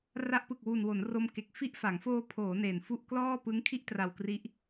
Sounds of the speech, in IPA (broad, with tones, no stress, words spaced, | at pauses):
ra˦˥ʔpɯ˨˩k̚wu˨˩nwo˩˦n ro˧mke˨˩k̚ fi˦˥ʔfa˩˦ŋfoː˧pʰoː˩˦ ne˨˩nfu˥˩ʔ klɔː˥˩pɯ˦˥ŋkʰi˥˩ʔ tra˨˩wkri˦˥ʔ